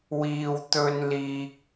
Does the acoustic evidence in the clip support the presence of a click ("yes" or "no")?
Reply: no